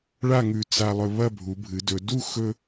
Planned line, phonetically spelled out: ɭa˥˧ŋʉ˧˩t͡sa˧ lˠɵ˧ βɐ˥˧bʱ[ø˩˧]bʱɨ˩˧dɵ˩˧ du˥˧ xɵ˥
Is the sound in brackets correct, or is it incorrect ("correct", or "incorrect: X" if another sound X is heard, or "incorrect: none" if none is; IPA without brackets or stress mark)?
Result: incorrect: u˩˧